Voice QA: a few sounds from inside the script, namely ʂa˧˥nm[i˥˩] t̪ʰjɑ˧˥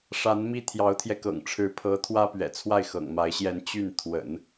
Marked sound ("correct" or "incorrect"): incorrect